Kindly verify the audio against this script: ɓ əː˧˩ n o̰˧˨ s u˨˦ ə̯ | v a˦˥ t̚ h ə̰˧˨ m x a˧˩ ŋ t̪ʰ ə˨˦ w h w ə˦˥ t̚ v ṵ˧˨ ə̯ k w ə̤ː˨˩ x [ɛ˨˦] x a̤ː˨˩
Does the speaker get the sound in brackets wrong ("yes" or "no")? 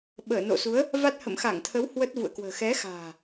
no